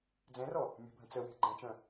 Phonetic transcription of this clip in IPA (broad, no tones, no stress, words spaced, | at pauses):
d͡zɛ̃rɔ | mʲə̤bʱə̃ t͡səwe̤ ɡ͡ǃɛ̃t͡ʃœ̃